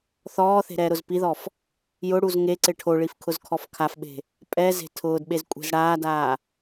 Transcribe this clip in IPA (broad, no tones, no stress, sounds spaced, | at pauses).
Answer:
θ ɔː θ e̤ ɾ ɛː ɾ ʊ z p i ð ɔ f | j ʊ ɽ u z ŋ e ǀ ɪ ʈʰ o ɭ i f kʰ ʊ z kʰ ɔ f kʰ a f ɓ e̤ | pʼ ɛ z e̤ tʰ ʊː d ɓ e z kʷʼ e̤ z ɽ aː d aː